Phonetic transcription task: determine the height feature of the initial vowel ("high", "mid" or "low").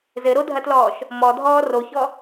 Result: mid